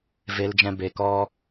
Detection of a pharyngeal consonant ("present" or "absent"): absent